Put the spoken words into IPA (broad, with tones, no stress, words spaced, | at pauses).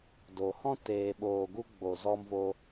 do˨hɔ̃˦ teː˧ɓoː˧ɡu˦ ɡ͡bo˧ zɔ˦mvo˦